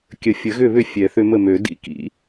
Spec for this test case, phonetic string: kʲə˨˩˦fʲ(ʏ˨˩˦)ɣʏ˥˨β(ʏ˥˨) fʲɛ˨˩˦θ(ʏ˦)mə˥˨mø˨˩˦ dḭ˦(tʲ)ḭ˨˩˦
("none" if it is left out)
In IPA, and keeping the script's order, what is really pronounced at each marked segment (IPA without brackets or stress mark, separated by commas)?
ə˨˩˦, ʏ˥˨, ʏ˦, k